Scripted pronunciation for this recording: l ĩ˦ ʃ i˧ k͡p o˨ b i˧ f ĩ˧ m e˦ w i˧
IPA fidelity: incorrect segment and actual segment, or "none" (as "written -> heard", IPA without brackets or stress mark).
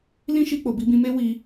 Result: f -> b